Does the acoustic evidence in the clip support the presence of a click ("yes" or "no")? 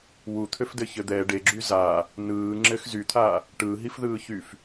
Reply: yes